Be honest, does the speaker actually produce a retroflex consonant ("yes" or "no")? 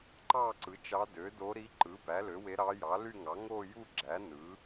no